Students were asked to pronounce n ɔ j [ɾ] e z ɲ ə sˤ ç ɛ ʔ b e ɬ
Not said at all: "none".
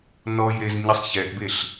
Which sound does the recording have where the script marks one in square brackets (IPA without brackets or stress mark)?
ɾ